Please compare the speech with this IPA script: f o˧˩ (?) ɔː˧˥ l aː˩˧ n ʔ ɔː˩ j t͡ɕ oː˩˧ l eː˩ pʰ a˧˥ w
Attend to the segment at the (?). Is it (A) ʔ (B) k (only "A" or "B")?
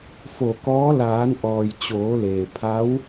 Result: B